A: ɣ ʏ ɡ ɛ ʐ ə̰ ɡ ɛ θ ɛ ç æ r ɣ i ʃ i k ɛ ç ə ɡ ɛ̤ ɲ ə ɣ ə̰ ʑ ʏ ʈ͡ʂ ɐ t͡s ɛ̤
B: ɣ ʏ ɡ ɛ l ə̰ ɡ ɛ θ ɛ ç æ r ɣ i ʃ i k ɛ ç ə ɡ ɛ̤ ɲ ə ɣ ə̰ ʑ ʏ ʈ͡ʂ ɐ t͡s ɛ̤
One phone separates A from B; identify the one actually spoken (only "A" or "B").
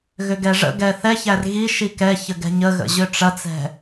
A